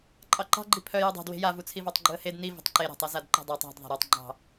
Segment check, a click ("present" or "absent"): present